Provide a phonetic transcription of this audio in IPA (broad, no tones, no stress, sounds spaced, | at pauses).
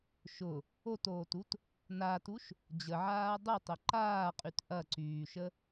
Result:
ʃ ʊ | o t oː t u t | n a t u ʃ | d͡ʑ ə ʕ aː dˤ ʊ tˤ ə ǃ aː qʼ y t ʔ ɐ ǀ yː ʃ ə